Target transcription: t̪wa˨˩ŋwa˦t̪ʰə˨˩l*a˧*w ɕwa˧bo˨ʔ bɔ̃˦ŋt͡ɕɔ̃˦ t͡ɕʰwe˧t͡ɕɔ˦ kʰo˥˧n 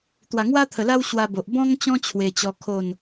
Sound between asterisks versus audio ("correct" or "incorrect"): incorrect